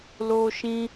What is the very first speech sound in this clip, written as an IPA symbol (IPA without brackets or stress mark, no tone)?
l